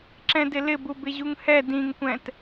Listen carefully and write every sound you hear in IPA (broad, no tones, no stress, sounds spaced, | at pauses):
ǁ ɛ̃ d ɪ l ɪ b u b ɪ ʑ u ŋ h ɛ d ĩ ŋ kʷ ɛ̃ t